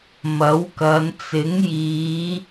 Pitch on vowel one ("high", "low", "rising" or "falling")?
rising